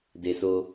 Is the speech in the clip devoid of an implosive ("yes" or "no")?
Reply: yes